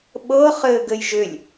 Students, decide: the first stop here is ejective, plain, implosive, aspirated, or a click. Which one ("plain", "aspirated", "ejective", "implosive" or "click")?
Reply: implosive